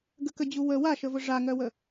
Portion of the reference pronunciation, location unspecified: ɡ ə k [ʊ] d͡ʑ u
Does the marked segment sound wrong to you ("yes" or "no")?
yes